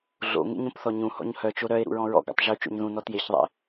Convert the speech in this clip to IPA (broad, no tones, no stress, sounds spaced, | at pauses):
ɮ o̰ ŋ ḛ ɲ õ p θ ɔ ɲ ũ h ɔ̰ ɲ h œ t͡ʃ o ɾ œ e̯ ɾ ṵ ɹ ɔ̃ ɹ ɔ̰ ɡ ɔ̰ tˤ ʒ u t͡ʃ o̰ ɲ ð ũ n ɔ t j e ç ðˤ ḛ